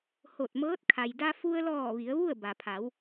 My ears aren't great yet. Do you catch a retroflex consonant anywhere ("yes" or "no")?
no